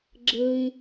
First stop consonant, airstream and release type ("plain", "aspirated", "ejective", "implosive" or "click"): click